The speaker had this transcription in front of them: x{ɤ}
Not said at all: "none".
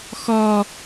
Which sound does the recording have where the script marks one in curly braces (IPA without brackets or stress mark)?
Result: ɔ